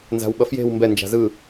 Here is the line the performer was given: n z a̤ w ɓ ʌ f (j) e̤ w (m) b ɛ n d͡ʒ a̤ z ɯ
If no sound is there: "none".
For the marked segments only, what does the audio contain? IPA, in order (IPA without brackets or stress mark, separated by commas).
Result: j, m